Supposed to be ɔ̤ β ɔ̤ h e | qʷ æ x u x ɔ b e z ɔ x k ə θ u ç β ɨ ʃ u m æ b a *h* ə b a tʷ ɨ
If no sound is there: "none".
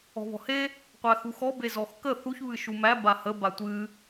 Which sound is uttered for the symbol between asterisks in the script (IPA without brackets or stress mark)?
h